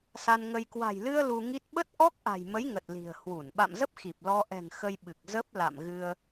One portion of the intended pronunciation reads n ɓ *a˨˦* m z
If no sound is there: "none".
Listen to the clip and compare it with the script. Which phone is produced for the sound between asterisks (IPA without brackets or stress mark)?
a̰˧˨